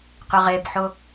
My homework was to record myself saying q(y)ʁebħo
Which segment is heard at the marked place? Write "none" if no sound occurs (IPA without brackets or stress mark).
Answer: ʏ